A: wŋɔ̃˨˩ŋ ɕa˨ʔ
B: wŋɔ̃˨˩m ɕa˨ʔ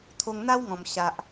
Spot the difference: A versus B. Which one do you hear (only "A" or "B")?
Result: B